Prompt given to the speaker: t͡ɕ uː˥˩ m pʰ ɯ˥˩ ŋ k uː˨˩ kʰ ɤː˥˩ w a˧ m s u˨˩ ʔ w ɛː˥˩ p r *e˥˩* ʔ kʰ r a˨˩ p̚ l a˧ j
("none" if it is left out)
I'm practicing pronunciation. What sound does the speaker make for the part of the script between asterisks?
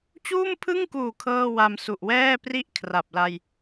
i˥˩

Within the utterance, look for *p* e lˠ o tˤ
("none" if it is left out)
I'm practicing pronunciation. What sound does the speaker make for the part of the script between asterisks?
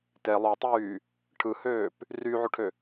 t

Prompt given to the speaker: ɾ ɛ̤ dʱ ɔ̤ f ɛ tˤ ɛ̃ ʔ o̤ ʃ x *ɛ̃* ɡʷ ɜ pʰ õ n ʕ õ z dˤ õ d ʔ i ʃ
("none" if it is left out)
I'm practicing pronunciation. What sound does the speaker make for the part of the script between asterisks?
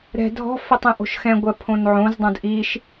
ɛ̃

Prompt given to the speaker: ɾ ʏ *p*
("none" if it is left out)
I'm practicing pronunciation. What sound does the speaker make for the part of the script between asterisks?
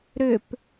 p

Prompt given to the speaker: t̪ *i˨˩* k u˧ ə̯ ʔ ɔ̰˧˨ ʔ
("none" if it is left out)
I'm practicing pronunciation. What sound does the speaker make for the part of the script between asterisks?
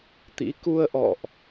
ḭ˧˥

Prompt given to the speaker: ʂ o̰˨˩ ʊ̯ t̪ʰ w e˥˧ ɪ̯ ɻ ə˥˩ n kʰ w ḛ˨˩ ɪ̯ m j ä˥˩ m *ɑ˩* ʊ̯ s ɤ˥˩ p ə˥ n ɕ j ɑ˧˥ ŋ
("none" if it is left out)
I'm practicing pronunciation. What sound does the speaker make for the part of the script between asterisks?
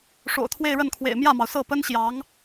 ɑ˩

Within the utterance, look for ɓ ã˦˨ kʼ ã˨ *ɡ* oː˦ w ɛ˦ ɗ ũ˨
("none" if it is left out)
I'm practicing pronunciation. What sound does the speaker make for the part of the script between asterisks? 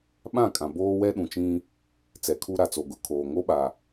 b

